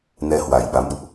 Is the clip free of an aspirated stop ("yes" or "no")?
yes